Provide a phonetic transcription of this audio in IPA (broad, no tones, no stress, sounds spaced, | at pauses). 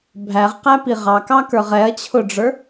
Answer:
bʱ æ ʁ q æ p i ʁ ɑ k ɑ k ə˞ ʁ ɛ ɐ̯ t͡ɕʰ ʊ ɖ͡ʐ ə˞